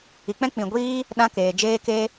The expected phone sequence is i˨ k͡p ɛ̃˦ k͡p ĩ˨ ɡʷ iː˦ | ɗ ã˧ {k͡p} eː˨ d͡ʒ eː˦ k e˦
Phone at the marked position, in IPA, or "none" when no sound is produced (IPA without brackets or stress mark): k